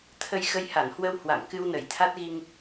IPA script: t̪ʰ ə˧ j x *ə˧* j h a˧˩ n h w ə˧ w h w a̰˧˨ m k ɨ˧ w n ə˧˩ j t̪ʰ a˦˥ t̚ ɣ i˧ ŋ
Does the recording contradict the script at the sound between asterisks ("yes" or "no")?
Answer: no